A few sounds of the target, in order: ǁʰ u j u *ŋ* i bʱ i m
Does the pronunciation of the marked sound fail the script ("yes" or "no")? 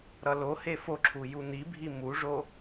yes